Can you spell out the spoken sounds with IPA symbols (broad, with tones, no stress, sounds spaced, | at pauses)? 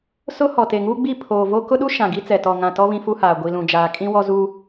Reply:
s ʊ˦ h ɔ˨ t e˨ ŋ uː˦ ɡ͡b i˦˨ pʰ oː˨ v o˦ k ʊ˦ ɗ u˦ ʃ ã˨ ɡ i˦ t͡s ɛ˨ t ɔ˨ ŋ ã˨ t ɔ˦ β ĩ˦ f u˦ h aː˨ ɡʷ i˨ l ũ˨ d͡ʒ aː˨ kʼ ĩ˦ w ɔ˦ z u˦